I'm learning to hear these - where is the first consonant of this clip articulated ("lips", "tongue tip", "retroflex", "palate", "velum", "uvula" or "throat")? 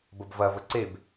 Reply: lips